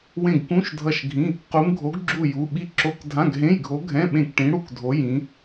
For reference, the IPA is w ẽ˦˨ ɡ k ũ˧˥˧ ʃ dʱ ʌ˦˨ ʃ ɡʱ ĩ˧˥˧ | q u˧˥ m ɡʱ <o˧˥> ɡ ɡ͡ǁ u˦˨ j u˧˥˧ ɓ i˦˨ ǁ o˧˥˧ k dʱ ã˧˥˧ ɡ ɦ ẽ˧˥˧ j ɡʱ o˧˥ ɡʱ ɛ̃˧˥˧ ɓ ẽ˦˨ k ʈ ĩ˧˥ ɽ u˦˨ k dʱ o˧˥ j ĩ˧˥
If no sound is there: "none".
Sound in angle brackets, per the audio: o˧˥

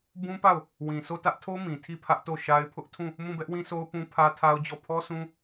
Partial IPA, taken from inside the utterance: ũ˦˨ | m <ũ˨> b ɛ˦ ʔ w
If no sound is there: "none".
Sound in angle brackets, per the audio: ũ˦˨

